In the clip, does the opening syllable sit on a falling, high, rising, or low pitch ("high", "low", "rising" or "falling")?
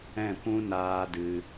falling